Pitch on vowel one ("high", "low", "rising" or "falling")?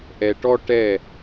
low